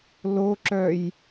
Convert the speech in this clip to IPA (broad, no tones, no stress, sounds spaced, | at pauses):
l o ǁ œ j